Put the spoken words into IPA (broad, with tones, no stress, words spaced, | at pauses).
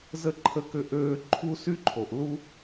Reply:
zə˥ ǃʰə˥kʏ˥ʔøː˥ ǃʰu˥sy˥ǃʰo˩ʔ lu˥